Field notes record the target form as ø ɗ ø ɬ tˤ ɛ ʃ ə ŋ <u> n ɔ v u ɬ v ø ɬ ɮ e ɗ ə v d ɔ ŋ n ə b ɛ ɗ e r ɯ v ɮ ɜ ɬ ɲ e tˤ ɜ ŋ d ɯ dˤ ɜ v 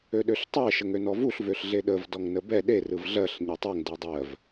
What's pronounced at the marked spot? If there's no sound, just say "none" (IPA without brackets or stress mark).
ø